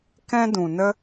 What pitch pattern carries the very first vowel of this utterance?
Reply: high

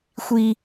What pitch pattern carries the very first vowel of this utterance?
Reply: low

